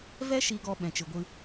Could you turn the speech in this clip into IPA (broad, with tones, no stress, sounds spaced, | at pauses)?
v ɛ˦ ʃ i˧ ɡ ɔ˧ ɓ ɛ̃˧ t͡ʃ ɨ˧ ɡʷ ɨ˦